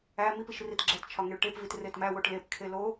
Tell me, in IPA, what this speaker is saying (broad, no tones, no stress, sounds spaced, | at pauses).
æ m i p i ʃ r i t ɡ͡ǁ æ t t͡ʃʰ ɒ ŋ e ɭ ʈ e p v i t r e t m æ w o ʈ l e p kʰ e l o